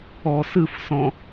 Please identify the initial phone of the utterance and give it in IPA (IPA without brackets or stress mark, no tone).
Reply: ɔ